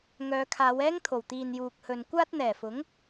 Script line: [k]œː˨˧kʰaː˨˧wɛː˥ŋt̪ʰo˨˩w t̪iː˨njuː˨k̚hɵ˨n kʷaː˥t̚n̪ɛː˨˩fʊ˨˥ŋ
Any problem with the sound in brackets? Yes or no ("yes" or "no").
yes